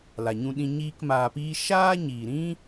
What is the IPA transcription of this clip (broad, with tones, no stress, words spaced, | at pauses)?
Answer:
la˨ɲũ˧ɗĩ˧ ɲiː˦kmaː˧piː˦ ʃaː˦ɲiː˨ɾĩ˦